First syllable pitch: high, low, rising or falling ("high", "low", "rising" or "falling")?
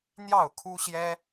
falling